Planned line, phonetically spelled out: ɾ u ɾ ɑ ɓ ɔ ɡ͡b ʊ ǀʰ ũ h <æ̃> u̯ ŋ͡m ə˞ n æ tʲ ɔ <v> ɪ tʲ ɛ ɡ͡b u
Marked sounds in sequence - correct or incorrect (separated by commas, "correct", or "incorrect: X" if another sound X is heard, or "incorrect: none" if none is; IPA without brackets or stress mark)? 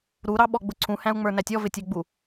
correct, correct